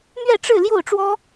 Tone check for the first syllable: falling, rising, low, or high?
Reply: falling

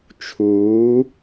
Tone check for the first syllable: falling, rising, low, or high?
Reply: rising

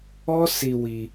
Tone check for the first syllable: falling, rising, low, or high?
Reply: high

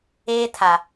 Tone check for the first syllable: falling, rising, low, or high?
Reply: high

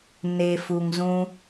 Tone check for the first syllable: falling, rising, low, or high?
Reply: low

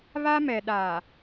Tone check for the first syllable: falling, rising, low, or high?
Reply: high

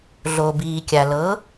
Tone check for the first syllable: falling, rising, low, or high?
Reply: low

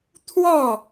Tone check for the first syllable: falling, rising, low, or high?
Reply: falling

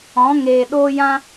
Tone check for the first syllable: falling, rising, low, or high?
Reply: rising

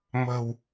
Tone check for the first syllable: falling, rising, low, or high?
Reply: low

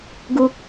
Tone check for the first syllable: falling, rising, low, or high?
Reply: low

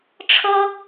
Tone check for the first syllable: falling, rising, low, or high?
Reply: high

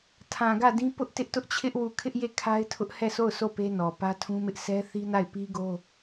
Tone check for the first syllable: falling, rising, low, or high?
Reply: low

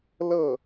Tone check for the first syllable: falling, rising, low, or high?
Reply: falling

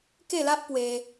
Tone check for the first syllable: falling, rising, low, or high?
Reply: falling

